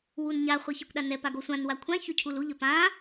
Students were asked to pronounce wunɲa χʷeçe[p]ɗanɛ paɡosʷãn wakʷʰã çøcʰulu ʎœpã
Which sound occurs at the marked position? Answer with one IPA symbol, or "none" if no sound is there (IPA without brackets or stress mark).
kʷ